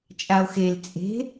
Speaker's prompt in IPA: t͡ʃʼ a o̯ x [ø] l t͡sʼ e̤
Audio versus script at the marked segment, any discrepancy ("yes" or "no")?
yes